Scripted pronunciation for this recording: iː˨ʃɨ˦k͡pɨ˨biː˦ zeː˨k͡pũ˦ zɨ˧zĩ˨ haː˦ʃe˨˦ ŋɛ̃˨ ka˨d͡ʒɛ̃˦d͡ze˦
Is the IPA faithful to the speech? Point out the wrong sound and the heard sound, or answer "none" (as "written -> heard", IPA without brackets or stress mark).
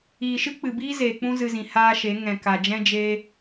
d͡z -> d͡ʒ